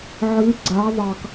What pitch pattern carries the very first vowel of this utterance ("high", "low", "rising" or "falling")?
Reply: rising